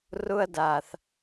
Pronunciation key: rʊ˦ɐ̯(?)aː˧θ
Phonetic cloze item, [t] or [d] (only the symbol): d